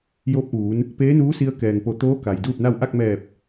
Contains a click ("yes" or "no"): no